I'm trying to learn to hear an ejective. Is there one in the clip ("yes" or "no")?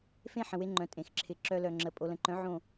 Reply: yes